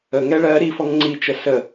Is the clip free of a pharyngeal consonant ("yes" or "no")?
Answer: yes